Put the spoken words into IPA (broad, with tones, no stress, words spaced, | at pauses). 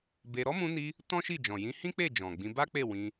be˧ ɾɔ˦mũ˧ni˧ | tɔ̃˦ʃi˦˨d͡ʒɔ̃˨ jĩ˨˦hĩ˦k͡pe˦˨ d͡ʒɔ̃˨ɡ͡bĩ˧ ba˦k͡pe˦˨ wĩ˧